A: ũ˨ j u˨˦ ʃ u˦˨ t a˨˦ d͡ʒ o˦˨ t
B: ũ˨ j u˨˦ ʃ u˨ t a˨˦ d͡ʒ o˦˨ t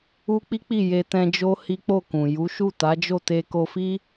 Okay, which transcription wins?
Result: A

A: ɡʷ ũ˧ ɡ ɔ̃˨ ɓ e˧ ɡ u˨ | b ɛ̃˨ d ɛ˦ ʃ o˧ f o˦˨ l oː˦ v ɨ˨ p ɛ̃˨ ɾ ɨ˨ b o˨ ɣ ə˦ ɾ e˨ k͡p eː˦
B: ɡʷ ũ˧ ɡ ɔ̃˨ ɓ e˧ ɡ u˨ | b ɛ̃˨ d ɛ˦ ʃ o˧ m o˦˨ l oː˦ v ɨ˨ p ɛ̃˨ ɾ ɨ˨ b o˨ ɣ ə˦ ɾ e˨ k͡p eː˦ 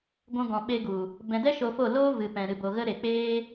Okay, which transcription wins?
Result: A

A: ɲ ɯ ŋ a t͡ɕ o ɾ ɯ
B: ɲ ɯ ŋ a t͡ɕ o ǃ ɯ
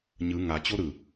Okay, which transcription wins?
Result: A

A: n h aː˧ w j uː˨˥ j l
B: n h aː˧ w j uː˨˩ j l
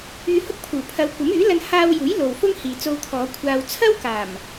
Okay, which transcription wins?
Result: A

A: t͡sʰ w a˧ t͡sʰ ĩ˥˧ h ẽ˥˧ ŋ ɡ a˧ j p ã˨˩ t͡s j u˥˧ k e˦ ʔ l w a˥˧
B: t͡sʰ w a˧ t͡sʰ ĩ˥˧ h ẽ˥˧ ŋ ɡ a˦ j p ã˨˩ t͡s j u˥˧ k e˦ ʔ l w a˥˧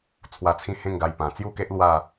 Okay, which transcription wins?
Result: A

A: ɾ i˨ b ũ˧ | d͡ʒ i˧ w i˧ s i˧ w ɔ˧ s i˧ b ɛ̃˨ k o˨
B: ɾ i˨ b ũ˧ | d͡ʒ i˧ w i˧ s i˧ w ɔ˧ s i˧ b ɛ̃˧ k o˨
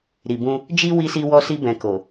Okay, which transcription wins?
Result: A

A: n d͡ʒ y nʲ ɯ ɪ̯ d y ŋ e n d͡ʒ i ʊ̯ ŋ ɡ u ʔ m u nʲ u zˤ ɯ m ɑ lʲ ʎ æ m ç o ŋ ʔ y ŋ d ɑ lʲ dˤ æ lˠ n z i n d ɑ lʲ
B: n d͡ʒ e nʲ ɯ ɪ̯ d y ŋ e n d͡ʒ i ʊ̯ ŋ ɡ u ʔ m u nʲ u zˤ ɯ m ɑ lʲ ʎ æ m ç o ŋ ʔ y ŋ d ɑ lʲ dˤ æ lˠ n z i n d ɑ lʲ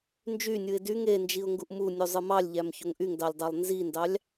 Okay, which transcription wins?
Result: A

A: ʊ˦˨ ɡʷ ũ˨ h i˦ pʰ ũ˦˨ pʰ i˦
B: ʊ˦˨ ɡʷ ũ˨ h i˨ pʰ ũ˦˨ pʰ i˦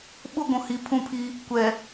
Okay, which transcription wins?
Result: B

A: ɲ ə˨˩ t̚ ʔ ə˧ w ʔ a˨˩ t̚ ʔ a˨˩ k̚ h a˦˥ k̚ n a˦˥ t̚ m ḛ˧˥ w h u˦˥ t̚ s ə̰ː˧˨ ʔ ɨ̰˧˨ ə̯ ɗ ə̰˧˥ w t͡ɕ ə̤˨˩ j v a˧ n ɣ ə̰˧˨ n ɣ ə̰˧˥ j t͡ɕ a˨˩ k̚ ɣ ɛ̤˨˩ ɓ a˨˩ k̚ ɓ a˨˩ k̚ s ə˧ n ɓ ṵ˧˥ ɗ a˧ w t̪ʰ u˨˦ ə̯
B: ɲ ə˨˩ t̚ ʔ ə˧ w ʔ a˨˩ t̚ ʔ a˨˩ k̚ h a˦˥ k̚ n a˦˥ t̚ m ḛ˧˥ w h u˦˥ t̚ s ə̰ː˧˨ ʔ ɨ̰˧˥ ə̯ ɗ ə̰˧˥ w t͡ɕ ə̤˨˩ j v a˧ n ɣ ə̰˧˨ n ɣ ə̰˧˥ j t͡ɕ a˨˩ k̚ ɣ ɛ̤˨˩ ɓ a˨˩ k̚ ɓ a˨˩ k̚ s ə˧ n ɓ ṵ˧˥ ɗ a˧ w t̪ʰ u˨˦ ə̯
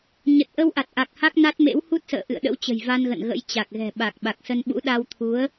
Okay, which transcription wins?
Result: A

